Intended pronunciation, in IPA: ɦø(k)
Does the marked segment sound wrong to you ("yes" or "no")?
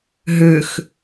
yes